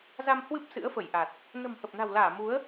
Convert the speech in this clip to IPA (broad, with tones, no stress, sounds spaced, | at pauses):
z a˧ m h w ɨ˦˥ p̚ s ɨ̰˧˥ ə̯ f ə˧˩ j ʔ a˨˩ t̚ | n ə̤˨˩ m h ə˨˩ p̚ n a̤˨˩ w l aː˧˩ m u˨˦ ə̯